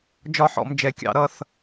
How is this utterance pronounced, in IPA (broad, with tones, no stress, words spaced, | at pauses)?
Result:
d͡ʒɒ˦˨ħɔ̰˧˩˧m d͡ʒɛ˧˩˧kʲɑ̰˧˩˧ ɾʌ˦˨θ